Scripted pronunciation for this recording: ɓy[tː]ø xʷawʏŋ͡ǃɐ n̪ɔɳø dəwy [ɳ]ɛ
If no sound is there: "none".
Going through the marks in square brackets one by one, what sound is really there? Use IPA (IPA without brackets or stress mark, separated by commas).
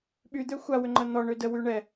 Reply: d̪, ɳ